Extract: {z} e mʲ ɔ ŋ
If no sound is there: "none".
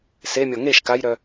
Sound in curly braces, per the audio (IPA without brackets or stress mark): s